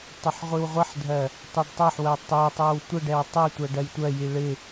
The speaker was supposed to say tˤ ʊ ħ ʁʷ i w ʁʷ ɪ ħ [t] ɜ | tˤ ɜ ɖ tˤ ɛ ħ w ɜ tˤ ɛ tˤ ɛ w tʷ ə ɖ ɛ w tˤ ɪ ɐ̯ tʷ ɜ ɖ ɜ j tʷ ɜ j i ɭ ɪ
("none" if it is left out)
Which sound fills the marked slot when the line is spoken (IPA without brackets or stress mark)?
dʱ